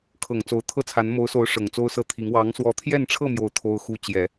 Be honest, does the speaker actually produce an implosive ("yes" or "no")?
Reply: no